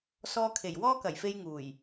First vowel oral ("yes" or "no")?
yes